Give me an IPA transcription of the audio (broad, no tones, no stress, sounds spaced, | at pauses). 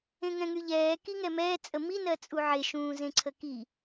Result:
ẽ ŋ ɛ̃ ŋ y ʎ ɛː k i ŋ ɛ m ɛː t͡sʼ ə m i n ɜ t͡sʼ u ʕ e ʃ ũː z ẽ ǀʰ ə k i